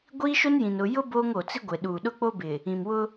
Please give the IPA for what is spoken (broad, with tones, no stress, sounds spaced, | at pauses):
ɡʷ iː˦ ʃ o˦ n j ĩ˨ n ʊ˨ j ʊ˦ b oː˦ ŋ o˨ t͡s i˦ ɡʷ e˨ ɗ uː˨ ɗ ʊ˦ k͡p o˦ b ɪ˨ | ĩ˨ m w ʊ˦